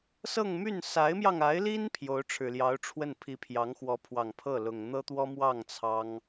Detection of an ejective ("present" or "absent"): absent